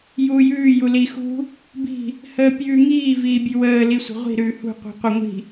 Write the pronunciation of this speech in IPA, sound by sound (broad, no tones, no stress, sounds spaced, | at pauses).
j uː j ʉː j u l i x ṳ | b i̤ | h əː pʲ ʉː ŋ iː v iː bʲ ʉ w əː l i sʷ ə̤ ʁʷ i̤ ɾ ʉː h ṳ qʷ i̤ qʷ ə ŋʷ i̤